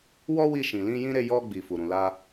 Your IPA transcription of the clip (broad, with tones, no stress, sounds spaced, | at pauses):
w ɔ˦ w i˧ ʃ ĩ˨ l ĩ˧ j ĩ˦ ɾ e˧ j ɔ˧ ɡ͡b i˨ f u˨ ɾ ũ˨ l a˧